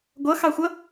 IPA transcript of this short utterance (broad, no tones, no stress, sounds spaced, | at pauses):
ɡʷ ʌ x ɑ xʷ ʌ